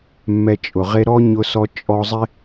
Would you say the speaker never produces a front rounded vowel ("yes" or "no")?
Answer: yes